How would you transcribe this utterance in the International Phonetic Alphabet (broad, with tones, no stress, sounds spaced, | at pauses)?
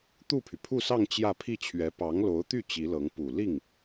t̪ u˥˩ pʰ y˩ pʰ u˥˧ s ɑ˥˧ ŋ t͡ɕ j ä˥˧ pʰ i˥˩ t͡ɕʰ ɥ ɛ˧˥ p ɑ˧˥ ŋ l o˧˥ ʊ̯ t̪ y˥˩ t͡ɕ i˧˥ l ɤ˧˥ ŋ p u˨˩ l i˥˩ ŋ